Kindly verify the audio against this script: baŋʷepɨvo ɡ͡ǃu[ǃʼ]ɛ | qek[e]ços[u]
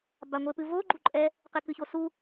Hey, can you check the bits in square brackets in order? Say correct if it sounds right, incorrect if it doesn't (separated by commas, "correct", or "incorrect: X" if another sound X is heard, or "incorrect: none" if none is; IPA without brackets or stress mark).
correct, incorrect: ɨ, correct